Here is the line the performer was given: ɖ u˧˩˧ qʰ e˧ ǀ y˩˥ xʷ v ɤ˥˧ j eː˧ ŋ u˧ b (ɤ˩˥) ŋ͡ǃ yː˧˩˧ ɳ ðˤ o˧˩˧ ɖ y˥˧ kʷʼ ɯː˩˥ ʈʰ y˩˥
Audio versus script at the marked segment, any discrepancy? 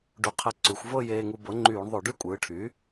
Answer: no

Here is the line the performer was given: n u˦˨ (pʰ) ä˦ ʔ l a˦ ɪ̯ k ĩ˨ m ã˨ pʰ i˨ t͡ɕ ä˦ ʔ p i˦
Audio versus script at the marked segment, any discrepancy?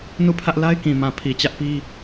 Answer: no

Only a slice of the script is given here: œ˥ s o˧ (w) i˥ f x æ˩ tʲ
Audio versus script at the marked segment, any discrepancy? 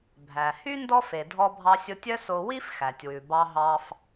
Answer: no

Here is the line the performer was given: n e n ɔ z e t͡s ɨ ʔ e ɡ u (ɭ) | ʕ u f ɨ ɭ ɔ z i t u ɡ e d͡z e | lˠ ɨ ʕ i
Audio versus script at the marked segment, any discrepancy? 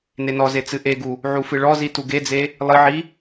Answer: yes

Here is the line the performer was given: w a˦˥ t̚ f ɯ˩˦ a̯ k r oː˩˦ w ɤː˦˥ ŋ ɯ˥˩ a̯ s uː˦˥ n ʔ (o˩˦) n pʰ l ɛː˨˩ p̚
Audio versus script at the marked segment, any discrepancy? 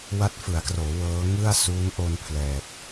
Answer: yes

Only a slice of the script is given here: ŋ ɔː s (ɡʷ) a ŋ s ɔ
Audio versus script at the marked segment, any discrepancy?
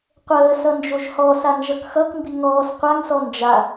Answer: yes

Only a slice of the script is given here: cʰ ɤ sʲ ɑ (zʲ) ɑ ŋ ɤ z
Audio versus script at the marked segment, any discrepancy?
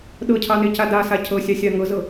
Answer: yes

